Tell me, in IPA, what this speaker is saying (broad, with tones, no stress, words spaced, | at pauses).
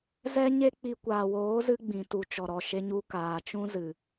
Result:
zɛ˦ɲe˦k͡pi˧ kʷaː˨woː˨˦zɨ˧ ɡ͡bĩ˨tu˨t͡ʃɔ˨ɾɔ˨ ʃe˧ɲu˧ kaː˨t͡ʃũ˦ zɨ˨